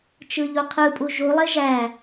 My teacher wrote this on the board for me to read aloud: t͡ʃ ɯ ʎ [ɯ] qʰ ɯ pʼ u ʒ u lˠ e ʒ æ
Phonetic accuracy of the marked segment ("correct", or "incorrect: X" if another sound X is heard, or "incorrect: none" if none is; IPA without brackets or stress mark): incorrect: u